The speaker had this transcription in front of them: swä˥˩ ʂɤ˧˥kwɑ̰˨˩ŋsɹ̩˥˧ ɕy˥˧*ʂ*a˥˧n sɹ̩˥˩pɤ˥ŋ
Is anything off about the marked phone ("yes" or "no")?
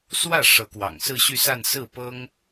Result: yes